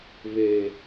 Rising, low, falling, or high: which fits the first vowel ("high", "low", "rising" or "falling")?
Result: low